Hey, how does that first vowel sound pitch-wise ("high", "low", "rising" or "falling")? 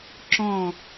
falling